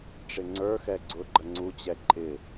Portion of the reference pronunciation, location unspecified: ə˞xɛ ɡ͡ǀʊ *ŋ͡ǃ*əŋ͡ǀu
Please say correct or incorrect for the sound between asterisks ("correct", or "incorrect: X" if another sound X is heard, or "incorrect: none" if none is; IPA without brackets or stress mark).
incorrect: ɡ͡ǃ